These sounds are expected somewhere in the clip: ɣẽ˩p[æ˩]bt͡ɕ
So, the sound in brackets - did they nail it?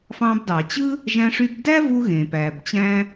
yes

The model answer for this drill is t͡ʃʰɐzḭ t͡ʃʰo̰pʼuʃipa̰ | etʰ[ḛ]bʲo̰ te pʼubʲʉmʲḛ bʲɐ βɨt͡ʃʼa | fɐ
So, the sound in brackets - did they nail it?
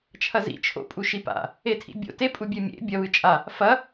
no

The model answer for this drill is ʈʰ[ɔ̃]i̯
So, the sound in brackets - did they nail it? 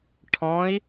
yes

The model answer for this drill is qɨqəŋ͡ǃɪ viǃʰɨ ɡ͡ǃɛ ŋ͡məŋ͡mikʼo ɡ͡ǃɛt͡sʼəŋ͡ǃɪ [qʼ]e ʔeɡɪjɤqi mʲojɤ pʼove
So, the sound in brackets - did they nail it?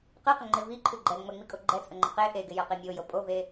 no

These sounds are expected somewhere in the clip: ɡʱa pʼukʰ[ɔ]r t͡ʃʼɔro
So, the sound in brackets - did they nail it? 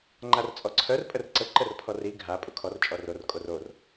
yes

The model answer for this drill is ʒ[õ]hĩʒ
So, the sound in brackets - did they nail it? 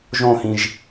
yes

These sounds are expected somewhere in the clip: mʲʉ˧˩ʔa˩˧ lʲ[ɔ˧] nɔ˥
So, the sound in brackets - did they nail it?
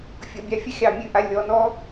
no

